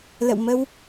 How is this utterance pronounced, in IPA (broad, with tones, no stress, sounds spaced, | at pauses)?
l ə̰˧˨ w m ə˧ w